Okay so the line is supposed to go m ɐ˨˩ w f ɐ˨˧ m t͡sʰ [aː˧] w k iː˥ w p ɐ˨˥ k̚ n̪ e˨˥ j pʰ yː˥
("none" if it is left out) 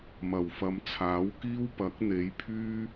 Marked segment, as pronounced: aː˨˥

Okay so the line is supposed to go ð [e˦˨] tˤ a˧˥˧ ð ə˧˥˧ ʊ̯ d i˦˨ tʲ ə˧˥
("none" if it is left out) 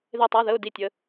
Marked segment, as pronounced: e˦˨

